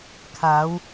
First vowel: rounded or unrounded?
unrounded